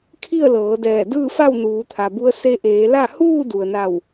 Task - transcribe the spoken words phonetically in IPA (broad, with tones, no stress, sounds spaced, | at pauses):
kʰ i˥˨ ə̯ l ɤː˩˧ d ɛː˧˩ d ɯː˥˨ f a˥˨ w n uː˩˧ t̪ʰ a˩ b u˧˥ ə̯ s e˧ ʔ eː˩˧ l a˥˨ h uː˥˨ d u˩ ə̯ n a˧˩ w